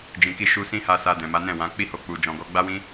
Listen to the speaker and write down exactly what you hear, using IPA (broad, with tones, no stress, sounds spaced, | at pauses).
d͡ʒ ĩ˨ k i˧ ʃ u˧ s ĩ˦ h a˧ s a˧ d ɛ̃˨ m a˨˦ n ɛ̃˦˨ w ã˨˦ k͡p i˦ h o˧ k͡p u˧ d͡ʒ ɔ̃˧ ɡ ɔ˧ ɡ͡b a˦ w ĩ˦